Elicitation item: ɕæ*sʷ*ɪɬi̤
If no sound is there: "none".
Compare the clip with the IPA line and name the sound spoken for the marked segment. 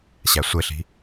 sʷ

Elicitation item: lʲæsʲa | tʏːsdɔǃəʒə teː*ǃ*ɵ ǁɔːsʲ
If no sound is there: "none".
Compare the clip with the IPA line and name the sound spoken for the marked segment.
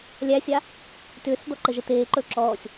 ǃ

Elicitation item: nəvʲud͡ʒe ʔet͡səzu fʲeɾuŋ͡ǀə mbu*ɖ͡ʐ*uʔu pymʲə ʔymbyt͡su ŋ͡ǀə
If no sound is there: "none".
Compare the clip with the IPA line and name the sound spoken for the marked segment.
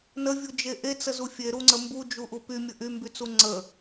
d͡ʒ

